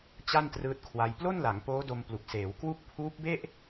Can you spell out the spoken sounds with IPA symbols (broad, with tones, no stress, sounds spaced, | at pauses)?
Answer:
t͡ɕ a˥˩ n t r ɯː˦˥ t̚ kʰ w a˧ j p l o˥˩ n l a˩˦ ŋ p oː˦˥ d o˧ m p l u˨˩ k̚ s eː˩˦ w k w u˥˩ k̚ pʰ uː˦˥ p̚ b e˥˩ ʔ